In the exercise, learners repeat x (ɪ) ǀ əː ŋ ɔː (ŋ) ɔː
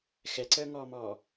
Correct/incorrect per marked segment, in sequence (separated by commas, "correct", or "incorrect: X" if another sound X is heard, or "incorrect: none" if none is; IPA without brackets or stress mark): incorrect: ɛ, incorrect: m